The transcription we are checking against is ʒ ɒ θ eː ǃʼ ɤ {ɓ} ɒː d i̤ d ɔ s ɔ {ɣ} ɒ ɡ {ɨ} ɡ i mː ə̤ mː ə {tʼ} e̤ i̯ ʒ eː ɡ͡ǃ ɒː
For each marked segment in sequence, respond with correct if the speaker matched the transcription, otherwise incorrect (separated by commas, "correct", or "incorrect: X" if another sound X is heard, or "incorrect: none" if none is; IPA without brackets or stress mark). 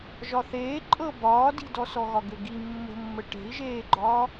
incorrect: b, correct, incorrect: ʏ, incorrect: ʈ